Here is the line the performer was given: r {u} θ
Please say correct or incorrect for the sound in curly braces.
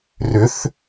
incorrect